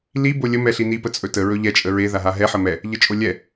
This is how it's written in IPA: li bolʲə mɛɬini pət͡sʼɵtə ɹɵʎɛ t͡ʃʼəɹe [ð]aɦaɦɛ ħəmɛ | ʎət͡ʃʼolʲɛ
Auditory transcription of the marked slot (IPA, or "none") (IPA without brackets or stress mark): ð